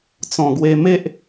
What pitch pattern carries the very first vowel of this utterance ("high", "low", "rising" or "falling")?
low